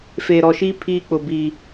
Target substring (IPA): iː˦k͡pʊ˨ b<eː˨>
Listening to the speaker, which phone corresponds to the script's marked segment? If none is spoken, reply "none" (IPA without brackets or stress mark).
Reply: iː˨